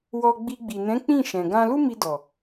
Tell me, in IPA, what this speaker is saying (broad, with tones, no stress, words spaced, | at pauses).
wɔ˧ɡ͡bi˧ ɡ͡bi˨nɛ̃˨˦ k͡pĩ˦˨ ʃɛ̃˨ ɡã˧lu˦mi˧dɔ˨